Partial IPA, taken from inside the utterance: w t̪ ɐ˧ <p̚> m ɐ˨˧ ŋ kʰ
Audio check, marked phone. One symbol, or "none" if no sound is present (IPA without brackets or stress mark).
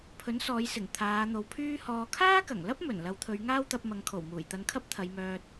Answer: p̚